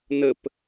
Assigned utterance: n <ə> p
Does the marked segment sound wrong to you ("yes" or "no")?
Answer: no